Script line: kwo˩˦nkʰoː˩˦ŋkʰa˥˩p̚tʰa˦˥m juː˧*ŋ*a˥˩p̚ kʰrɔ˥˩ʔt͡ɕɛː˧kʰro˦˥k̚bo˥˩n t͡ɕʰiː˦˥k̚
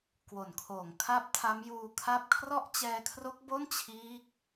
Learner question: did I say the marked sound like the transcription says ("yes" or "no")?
no